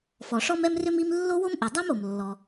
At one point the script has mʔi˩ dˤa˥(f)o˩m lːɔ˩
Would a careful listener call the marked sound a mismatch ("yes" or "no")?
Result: yes